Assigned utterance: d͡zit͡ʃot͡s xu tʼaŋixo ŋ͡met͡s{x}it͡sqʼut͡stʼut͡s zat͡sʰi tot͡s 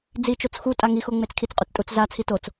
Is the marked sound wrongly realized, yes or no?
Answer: yes